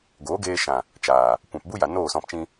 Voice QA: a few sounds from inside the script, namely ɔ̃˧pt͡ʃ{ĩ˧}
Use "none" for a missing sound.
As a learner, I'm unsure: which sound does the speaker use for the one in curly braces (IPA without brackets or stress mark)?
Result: ĩ˧